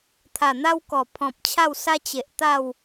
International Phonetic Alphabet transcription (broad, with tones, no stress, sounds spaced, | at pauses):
t̪ʰ a˨˩ n̪ a˦ w k ɔ˨˩ pʰ ɔ̃˨ p̚ t͡ɕʰ a˥˧ w s a˦ t͡ɕ e˨ ʔ t̪ a˥˧ w